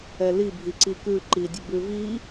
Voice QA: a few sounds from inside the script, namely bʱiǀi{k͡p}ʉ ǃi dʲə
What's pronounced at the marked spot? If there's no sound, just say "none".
k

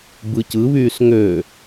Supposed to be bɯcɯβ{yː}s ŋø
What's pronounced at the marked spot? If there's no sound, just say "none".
yː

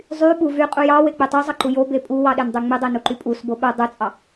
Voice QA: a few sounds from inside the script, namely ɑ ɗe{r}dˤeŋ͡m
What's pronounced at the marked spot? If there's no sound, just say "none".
n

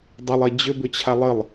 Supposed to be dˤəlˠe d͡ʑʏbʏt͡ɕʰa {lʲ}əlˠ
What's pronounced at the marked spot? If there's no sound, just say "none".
lˠ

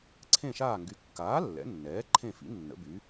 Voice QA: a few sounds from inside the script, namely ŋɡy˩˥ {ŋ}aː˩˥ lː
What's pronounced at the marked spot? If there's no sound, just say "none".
kː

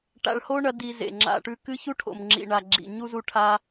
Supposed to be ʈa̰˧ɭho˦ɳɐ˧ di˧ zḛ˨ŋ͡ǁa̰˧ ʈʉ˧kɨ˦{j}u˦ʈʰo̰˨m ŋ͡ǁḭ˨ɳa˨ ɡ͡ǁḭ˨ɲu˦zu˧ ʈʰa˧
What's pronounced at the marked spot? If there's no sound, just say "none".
ç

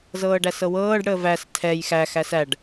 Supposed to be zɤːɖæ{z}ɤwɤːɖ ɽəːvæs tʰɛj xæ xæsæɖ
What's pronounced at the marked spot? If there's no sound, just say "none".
s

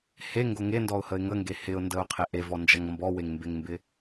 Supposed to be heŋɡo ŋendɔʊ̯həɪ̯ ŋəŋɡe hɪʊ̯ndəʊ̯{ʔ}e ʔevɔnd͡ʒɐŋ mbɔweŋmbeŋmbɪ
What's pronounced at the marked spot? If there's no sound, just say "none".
qʰ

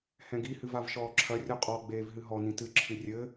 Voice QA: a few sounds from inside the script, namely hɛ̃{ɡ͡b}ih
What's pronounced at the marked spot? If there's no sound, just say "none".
ɡ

